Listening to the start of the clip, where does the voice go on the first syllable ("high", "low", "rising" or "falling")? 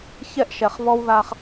high